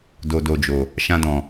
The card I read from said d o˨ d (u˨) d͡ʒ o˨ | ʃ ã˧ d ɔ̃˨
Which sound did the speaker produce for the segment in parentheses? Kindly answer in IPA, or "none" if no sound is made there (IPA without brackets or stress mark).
o˨